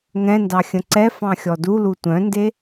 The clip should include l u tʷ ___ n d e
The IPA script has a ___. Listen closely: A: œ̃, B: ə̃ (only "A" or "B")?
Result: A